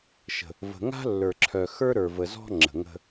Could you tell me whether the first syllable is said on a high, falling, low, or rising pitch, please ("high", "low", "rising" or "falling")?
low